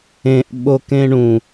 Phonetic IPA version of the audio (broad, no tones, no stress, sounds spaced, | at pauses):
ẽ ʔ ɓ o k ẽ ɳ ũ